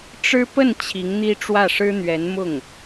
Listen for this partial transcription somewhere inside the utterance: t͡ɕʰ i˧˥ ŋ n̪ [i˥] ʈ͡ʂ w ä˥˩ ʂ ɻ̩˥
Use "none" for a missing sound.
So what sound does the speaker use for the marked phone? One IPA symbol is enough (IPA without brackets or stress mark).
i˥